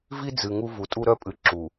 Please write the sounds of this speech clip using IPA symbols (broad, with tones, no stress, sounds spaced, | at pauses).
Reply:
v i˦ d͡z ɨ˨ ŋ u˦ v u˨ tʼ u˦ ɾ œ˦ pʼ ɨ˨ ǁ u˨